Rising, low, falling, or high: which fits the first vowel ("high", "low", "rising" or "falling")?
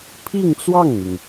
falling